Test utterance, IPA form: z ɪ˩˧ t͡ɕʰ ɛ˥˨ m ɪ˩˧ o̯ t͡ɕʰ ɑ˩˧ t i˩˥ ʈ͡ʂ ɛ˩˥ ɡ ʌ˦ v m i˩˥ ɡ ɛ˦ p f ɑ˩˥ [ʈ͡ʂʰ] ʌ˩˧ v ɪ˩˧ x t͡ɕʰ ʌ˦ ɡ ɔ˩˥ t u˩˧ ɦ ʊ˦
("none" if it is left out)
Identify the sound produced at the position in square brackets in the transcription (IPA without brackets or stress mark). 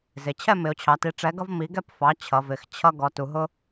t͡ɕʰ